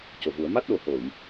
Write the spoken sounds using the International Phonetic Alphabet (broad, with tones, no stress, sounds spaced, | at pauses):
c o˨˩ v u˨˩˦ ə̯ m a˦˥ t̚ ɗ o˨˩ h o˨˩˨ j